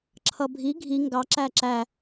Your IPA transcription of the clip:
ǁʰ ʌ bʱ i ɡʱ i ŋ ɡ ɑ ǁ æ ǁ æ

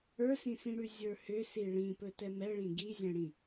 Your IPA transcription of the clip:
ə˞ s ĩ s ĩ ɽ ʉ zʲ ə˞ h ʏ s i ɭ ĩ p ɵ t ɛ m ɛ ɭ ĩ ɡ i zʲ ɛ̃ ɽ ĩ

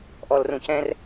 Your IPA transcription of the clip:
ʔ ɔ l r ũ c ɛ̃ r

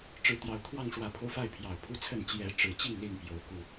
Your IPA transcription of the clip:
ʈ͡ʂ ɻ̩˨˦ t̪ j ɑ˨˩ ʊ̯ t̪ʰ w ɑ˥˨ ŋ ʂ w ä˨˦ pʰ o˧ ʊ̯ f a˥˨ ɪ̯ pʰ j ɑ˨˩ ʊ̯ pʰ u˦ t͡sʰ ə˥˨ n t͡ɕ j ɛ˨˦ ʈ͡ʂ ɻ̩˨˩ t͡ɕ i˥˨ ŋ l i˥˨ n p j o˨˦ ʊ̯ k u˨˩

